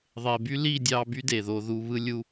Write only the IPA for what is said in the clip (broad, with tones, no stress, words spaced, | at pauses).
ðˤe˨by˦li˦˨ dʲɑ˧ by˦de˨ðo˧ ðu˧βɯ˦lʲu˦